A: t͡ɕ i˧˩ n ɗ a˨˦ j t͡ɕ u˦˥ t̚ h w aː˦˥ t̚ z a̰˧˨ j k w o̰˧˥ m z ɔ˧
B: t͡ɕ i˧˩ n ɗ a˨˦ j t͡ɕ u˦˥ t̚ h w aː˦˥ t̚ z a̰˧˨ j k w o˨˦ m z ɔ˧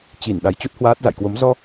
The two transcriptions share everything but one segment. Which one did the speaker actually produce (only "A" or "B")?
B